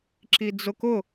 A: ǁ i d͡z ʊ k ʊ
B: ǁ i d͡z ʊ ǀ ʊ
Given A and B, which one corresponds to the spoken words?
A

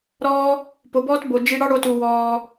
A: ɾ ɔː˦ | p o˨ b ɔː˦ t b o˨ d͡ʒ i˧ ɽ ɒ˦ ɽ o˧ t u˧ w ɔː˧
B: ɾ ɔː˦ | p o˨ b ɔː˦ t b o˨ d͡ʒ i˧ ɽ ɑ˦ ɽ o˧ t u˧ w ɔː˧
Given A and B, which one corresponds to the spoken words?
B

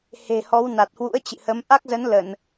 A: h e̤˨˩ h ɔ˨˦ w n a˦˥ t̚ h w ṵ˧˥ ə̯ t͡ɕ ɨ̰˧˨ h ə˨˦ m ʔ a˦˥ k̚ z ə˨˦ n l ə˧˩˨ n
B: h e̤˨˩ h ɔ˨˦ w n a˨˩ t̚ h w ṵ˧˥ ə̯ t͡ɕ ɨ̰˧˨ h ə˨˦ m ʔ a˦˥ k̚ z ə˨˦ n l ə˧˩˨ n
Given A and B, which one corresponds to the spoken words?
B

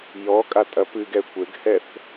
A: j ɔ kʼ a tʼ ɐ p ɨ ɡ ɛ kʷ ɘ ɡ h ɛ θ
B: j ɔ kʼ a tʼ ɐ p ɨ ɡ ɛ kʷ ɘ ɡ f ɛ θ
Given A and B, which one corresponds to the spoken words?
A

